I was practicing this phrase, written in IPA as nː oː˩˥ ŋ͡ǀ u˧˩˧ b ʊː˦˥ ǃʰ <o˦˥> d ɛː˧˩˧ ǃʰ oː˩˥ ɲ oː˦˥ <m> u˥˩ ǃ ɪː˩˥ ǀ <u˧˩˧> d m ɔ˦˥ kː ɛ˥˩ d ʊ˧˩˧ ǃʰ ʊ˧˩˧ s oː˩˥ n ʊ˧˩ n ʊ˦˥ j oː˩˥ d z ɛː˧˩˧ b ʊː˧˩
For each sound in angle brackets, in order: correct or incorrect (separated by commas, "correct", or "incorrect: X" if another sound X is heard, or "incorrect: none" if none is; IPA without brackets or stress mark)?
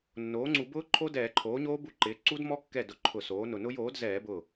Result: correct, incorrect: b, incorrect: u˦˥